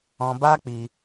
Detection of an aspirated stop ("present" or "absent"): absent